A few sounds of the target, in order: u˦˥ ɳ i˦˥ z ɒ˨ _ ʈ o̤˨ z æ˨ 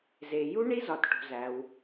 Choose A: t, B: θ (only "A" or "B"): A